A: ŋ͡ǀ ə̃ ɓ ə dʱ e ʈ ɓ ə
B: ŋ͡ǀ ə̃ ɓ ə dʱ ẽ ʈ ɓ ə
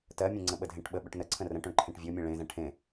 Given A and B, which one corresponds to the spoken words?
B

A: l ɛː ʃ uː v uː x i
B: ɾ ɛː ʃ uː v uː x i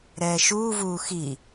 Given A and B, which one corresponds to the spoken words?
B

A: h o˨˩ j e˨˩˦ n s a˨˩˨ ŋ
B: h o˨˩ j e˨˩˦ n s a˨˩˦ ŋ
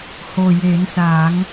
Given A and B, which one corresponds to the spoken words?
B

